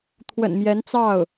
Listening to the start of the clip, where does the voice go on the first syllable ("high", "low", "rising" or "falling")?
low